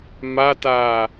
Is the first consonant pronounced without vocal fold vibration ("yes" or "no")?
no